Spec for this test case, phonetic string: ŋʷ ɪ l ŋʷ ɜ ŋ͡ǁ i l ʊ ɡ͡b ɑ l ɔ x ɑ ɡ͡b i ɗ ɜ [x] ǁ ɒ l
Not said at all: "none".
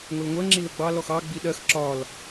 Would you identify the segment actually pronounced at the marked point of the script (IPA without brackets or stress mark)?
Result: x